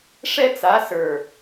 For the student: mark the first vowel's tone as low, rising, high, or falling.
high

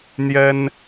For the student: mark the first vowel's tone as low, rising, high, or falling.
high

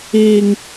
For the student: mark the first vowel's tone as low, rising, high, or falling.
low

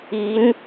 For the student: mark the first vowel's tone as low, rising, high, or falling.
rising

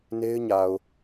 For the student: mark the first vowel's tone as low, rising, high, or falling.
high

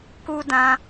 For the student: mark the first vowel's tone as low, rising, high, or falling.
high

